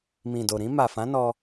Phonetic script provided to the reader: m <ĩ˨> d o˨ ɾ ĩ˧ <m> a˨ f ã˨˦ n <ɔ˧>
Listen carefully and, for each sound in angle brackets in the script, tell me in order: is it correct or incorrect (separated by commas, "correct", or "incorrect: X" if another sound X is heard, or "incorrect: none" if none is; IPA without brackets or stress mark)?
correct, correct, correct